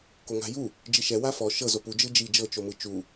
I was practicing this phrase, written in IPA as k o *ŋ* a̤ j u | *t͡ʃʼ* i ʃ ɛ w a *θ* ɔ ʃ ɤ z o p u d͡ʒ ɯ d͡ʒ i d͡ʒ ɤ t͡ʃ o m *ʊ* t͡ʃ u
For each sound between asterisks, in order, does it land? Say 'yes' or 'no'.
yes, no, no, no

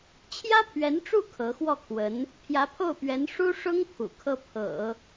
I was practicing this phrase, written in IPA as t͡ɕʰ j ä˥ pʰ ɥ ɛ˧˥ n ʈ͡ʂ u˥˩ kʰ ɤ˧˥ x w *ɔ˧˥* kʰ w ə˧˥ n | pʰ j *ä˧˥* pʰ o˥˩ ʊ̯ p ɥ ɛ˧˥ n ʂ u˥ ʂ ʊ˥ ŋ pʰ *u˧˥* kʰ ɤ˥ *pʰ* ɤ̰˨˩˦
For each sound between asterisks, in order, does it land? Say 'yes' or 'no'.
no, yes, no, yes

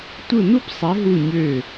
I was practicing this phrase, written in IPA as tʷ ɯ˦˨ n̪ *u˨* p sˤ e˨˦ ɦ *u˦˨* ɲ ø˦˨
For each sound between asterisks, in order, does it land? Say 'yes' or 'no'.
no, yes

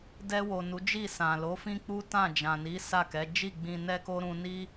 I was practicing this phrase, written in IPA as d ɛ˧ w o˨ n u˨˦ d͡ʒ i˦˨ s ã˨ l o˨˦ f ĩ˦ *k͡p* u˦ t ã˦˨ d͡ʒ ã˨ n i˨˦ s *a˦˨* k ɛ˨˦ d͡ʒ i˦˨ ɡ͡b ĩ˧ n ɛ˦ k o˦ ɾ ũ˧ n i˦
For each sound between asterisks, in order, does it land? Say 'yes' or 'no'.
yes, yes

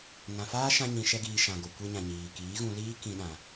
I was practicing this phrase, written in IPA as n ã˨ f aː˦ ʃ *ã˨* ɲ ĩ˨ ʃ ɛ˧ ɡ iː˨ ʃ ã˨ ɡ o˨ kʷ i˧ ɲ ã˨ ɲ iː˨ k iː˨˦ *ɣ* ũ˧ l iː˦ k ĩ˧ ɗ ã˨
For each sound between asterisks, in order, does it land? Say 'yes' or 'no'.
no, yes

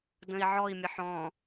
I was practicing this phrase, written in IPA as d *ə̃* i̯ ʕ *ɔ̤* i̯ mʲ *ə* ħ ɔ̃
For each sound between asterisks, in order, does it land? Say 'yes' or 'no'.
yes, no, yes

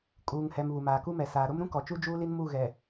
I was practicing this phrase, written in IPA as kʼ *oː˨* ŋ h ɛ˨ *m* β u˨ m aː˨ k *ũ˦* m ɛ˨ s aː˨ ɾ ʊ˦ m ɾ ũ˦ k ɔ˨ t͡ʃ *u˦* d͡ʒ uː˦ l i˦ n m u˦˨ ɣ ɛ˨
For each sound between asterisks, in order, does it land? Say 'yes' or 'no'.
no, yes, no, yes

